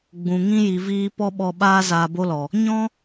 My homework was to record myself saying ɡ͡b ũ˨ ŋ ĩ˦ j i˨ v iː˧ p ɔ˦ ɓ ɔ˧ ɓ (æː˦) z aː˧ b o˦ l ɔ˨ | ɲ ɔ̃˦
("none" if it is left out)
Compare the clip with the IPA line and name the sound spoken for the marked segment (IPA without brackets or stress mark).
aː˦